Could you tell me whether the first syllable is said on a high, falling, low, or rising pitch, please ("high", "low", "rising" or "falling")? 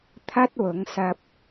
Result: high